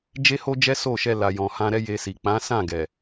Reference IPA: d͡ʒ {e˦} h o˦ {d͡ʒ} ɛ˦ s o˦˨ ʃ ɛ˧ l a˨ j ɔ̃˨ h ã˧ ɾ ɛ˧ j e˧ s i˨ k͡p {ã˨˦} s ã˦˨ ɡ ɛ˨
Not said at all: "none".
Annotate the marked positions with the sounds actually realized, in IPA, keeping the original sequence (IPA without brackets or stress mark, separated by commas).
e˦, d͡ʒ, ã˨˦